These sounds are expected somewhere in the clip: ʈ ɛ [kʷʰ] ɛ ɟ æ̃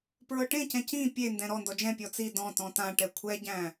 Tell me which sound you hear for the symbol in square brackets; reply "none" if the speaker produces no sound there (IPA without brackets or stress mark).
kʷʰ